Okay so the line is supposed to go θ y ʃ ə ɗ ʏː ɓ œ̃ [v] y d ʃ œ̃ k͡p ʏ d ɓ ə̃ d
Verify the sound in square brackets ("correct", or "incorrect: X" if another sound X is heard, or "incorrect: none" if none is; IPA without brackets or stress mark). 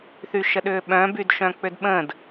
incorrect: b